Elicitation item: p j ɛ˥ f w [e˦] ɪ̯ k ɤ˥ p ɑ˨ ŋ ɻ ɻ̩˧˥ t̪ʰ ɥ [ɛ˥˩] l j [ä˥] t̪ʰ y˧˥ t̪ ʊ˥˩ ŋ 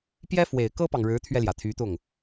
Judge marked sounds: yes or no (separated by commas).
no, no, no